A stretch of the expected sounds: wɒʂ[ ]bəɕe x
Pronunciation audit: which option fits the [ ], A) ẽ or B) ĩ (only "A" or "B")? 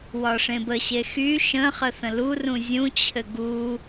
A